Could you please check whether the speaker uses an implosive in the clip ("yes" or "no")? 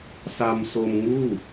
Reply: no